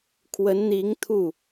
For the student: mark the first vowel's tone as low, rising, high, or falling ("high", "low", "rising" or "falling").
rising